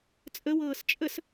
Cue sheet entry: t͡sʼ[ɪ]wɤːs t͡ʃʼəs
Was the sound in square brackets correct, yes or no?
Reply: no